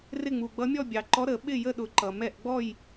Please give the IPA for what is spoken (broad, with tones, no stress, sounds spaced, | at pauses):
r ɪ˥˨ ŋ͡m u˩ ɡ͡b ʌ˧˥ mʲ ɔ˥˨ bʲ ɑ˩ ǃ ɔ˧˥ ɾ ə˨˩˦ ɓ ɪ˥˨ j ə˥˨ ɗ ʊ˨˩˦ ǃ ʌ˩ m ɛ˥˨ ʔ ɡ͡b ɔ˥˨ j